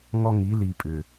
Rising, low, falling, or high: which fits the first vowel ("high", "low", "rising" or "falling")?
high